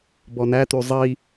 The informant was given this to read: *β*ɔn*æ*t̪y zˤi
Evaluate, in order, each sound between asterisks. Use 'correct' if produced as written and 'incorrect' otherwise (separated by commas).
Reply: incorrect, correct